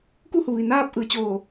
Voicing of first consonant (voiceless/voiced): voiceless